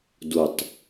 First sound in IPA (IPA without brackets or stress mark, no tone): d